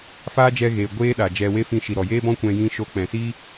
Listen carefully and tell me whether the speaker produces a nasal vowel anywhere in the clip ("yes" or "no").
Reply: yes